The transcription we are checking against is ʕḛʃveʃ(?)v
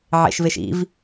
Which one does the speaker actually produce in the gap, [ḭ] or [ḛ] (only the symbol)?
ḭ